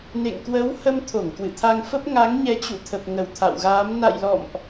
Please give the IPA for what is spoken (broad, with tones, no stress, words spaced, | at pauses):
nḛ˧˨ŋkwə˨˦w hə˧mt̪ʰo˧˩ŋ kwɨ̰˧˨t̪ʰa˧ŋfə˦˥p̚ ŋa˨˦ŋɲɛ˨˦t͡ɕṵ˧˨t̪ʰə˨˩p̚ ŋə˧˩wt̪ʰa̰˧˨wɣaː˨˦m na̰˧˨jlɔ̰˧˨mʔ